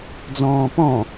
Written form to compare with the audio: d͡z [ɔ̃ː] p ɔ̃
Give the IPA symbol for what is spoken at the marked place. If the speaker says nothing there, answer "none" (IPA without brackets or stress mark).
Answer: ɔ̃ː